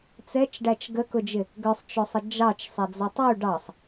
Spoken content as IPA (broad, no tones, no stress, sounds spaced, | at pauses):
t͡s ɛ t͡ʃ ɖ æ t͡ʃ ɡ ə k ʊ d͡ʒ ɪ | ɡ ə˞ sˤ t͡ʃ ʊ sˤ ə d͡ʒ ɑ t͡ʃ sˤ ɛ d͡z ɔ tˤ u ɖ ɑ sˤ